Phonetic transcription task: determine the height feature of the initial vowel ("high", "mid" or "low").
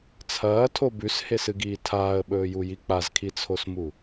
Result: low